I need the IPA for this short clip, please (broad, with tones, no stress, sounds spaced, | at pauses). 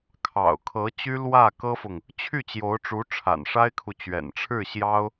kʰ ɑ̰˨˩ ʊ̯ kʰ ɤ˧˥ t͡ɕ y˥ l w ä˥˩ k ɤ˥ f ʊ˨ ŋ | t͡ɕʰ y˥˩ t͡ɕ j o˧˥ ʊ̯ ʈ͡ʂ u˧˥ ʈ͡ʂʰ a̰˨˩ n ʂ a˥ ɪ̯ kʰ u˨ t͡ɕ ɥ ɛ̰˨˩ n ʈ͡ʂʰ ɻ̩˥˩ ɕ j ɑ˥ ʊ̯